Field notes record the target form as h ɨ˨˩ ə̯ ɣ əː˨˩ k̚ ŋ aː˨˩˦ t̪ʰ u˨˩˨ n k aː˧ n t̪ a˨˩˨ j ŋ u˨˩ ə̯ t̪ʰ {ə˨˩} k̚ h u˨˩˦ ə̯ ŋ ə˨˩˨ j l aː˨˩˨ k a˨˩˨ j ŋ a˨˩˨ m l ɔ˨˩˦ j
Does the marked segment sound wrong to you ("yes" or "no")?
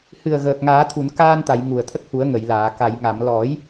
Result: yes